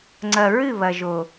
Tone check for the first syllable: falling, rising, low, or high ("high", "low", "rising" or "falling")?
low